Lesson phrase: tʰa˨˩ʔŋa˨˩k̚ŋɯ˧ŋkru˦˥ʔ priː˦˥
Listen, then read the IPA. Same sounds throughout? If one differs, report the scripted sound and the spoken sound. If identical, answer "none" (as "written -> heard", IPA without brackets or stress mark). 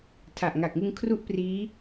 k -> kʰ